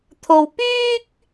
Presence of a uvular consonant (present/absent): absent